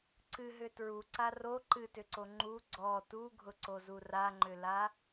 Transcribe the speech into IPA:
ǀɨ ɦʏtɹu ǀaro ǃɨtʏǀo ŋ͡ǃu ɡ͡ǀɔ tuɡʱʊǀozu raŋ͡ǃʏla

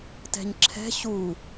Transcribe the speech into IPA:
tɛ̤ɲǁʰɛ̤ ɕu

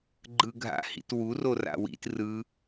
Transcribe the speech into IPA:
ɡ͡ǃɯɡʱa̰hḭtwu rora̰wḭt rɯ

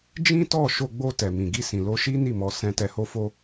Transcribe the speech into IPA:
d͡ʒĩ˦tɔ˦˨ ʃo˧ɡ͡bo˧ tɛ˨mĩ˨ ɡi˧sĩ˨lo˧ʃi˦ ni˦˨mɔ˨˦ sɛ̃˧tɛ˧ho˦fo˦

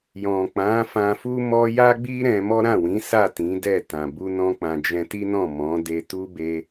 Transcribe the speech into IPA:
jɔ̃˨k͡pã˨˦ fã˧fu˦ mɔ˦ ja˦ɡ͡bi˦ɾɛ̃˧ mɔ˦ɾã˦˨wĩ˨˦sa˦˨ tĩ˨˦ dɛ˦˨tã˨ bu˧ nɔ̃˦k͡pã˧d͡ʒɛ̃˦ ti˦nɔ̃˦˨mɔ̃˨˦ de˧tu˦ be˦

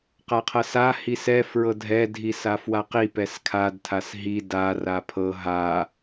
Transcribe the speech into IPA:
qaqʰɤsa hisɛ fɹɤdʱɛ dʱisafwaqi pɛskʰad tʰasɦi da rapʰɤ ɦa

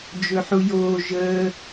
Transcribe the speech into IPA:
d͡ʒɵħujoː ʒəː

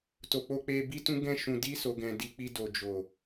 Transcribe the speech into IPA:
to˨ k͡po˧k͡pe˧ bi˦tũ˦ɡɛ̃˦ʃũ˧ di˦so˧ɡɛ̃˧ di˧k͡pi˧ do˨d͡ʒo˨

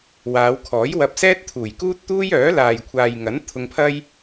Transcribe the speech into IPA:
waː˨˧wkʰɔː˨˥jwɐ˧p̚ sɛː˥t̚t̪ʰuː˨˩jkuː˥t̚t̪uː˥j œː˨˥laː˨jkʷʰaː˨jŋɐ˨˥n t̪ʰʊ˧ŋpʰɐ˥j

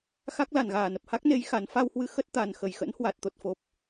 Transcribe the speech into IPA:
xa˦˥k̚la˧˩nɣaː˧˩nə˨˩p̚ ha˦˥k̚ne˨˦j xa˨˦n fa˧whwɨ˧xə˦˥t̚ t̪a˨˩nxə˧˩jxə̰˧˥nhwa˨˩t̚ t̪o˨˩t̚fo˨˩p̚

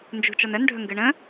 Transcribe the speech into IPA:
nd͡ʒṳt͡ʃɔn ənɖʱɵŋɡɨ ɳə̃

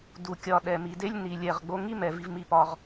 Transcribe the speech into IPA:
du˨ kʲɒ˨ ɗɛ˨mi˨de˦lʲ ni˨lʲ ɛ˨ʁ ɡ͡bo˧ŋi˦mɛ˨ vi˧vmi˧pɒ˧ʁ

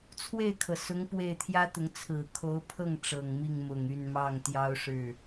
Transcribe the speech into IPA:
t͡sʰwe˥˩ɪ̯kʰɤ˩sʊ˧˥ŋ pwe˥˩ɪ̯ t̪ʰjä˥t̪ʊ˧˥ŋ t͡sʰɹ̩˨˩kʰo˧˥ʊ̯pʰɤ˥˩ŋ ʈ͡ʂɤ˨˩ŋmi˥˩ŋmʊ˨˩ŋ y˥˧nmɑ˥˩ŋt̪jɑ˥ʊ̯ʂɻ̩˥˩

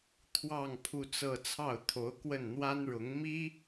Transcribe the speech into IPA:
t̪ʰwɑ˥˧ŋ pʰu˥˧t͡sɤ˥˧ t͡sʰɑ˥˩ʊ̯t̪ʰo˧˥ʊ̯kwə˥˩n n̪wa˥nɻʊ˧˥ŋ mi˥

